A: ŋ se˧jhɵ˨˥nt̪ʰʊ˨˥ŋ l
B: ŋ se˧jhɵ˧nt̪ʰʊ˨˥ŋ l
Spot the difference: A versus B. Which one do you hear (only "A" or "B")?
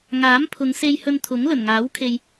B